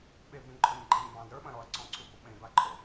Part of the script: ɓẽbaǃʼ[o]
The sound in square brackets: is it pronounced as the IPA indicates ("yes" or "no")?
yes